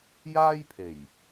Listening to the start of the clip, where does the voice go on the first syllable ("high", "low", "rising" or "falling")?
high